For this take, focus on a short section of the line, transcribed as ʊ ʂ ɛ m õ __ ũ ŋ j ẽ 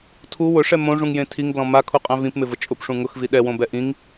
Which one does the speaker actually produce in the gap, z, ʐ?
ʐ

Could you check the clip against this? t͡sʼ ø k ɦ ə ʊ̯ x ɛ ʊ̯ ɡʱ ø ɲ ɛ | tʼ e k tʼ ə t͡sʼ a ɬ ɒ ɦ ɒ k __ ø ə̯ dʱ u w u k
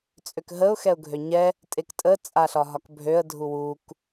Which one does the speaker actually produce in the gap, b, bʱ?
bʱ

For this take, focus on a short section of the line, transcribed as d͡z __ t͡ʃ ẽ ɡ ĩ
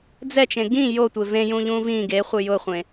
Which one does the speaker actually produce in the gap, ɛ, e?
ɛ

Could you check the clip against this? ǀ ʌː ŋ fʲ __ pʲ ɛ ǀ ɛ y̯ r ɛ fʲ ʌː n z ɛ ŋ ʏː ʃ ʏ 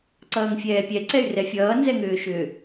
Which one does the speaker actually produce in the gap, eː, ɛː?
ɛː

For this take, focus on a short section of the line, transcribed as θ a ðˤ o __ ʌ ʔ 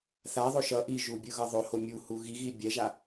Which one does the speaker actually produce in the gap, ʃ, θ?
ʃ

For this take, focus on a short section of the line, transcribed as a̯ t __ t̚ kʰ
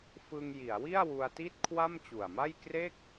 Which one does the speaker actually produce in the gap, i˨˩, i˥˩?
i˥˩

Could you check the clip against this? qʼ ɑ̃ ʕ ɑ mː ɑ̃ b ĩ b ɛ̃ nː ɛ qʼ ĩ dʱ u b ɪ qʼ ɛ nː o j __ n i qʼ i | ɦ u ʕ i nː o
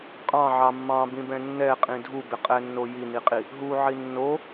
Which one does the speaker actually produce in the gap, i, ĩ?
i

